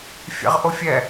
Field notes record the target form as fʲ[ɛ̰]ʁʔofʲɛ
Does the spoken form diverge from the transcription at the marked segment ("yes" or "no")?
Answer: no